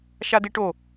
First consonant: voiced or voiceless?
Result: voiceless